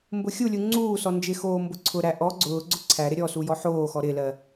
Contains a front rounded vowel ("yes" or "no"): no